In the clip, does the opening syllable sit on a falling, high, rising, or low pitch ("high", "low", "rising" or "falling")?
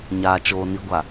low